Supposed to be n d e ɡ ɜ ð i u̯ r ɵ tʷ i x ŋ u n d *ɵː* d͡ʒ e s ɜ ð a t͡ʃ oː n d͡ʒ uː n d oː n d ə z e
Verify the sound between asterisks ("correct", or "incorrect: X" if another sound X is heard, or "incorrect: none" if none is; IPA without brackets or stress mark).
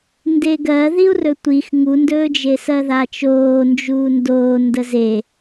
correct